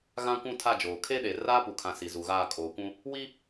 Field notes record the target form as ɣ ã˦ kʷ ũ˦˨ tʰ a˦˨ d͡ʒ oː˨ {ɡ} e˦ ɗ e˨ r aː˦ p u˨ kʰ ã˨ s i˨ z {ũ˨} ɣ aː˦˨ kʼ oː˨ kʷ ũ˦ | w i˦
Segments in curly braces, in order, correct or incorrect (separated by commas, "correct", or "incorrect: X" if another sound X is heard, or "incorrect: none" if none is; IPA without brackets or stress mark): incorrect: kʰ, incorrect: u˨